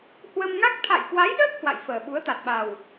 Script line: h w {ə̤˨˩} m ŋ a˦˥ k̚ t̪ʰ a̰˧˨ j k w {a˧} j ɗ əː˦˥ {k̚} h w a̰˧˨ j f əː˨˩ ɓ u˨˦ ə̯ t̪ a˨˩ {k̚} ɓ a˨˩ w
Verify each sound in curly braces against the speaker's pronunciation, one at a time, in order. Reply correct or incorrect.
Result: incorrect, incorrect, correct, incorrect

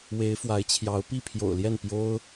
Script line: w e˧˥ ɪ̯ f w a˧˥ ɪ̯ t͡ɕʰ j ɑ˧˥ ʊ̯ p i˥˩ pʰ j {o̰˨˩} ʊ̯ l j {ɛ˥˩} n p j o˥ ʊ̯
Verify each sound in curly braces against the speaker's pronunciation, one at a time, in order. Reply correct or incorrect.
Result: correct, correct

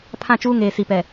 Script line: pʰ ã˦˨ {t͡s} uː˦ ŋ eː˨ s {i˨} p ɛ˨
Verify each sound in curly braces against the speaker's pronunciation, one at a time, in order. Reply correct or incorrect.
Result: incorrect, correct

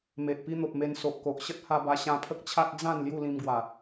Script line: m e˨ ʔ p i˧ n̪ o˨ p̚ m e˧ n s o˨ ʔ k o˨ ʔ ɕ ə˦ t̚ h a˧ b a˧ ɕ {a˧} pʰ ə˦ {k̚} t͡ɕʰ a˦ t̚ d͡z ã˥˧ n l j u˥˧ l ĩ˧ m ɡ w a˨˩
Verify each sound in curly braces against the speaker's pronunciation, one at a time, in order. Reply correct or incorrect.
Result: incorrect, correct

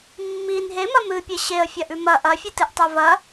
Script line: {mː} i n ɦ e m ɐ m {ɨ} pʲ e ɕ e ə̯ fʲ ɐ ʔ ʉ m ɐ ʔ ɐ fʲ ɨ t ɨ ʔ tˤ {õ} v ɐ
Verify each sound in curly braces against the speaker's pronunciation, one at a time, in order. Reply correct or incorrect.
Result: correct, correct, incorrect

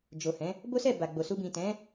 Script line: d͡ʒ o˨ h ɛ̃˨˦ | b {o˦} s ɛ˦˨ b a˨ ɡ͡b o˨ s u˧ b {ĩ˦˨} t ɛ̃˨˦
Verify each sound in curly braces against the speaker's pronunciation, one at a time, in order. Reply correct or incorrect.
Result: correct, incorrect

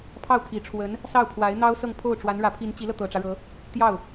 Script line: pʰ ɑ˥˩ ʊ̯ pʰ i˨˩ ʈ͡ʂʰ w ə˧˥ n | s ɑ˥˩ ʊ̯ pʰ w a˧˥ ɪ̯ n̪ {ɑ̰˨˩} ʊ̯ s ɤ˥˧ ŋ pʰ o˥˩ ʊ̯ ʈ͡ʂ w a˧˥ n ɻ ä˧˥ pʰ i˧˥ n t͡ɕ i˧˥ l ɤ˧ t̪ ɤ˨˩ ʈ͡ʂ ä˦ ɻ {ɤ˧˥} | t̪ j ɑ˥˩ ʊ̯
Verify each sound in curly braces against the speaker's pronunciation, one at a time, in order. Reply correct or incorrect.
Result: incorrect, correct

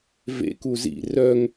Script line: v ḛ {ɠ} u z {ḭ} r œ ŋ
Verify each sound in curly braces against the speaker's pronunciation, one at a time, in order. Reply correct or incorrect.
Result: incorrect, correct

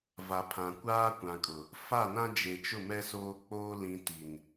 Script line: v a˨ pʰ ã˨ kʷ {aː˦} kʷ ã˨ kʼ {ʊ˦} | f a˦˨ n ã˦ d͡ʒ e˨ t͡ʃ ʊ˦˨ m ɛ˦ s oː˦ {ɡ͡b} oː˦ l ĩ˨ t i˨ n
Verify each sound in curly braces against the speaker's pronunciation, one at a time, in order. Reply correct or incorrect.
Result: correct, incorrect, incorrect

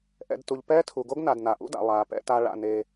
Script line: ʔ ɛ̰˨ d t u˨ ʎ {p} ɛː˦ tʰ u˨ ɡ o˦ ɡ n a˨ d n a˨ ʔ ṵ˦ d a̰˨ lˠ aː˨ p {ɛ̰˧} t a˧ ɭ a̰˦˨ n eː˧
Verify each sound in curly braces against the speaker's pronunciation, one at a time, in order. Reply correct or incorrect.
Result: correct, correct

